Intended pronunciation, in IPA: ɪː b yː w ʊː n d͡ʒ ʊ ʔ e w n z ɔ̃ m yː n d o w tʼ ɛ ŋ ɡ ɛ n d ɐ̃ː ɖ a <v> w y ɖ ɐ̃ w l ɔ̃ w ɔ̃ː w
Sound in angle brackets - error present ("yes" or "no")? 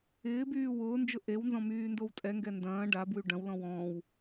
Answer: yes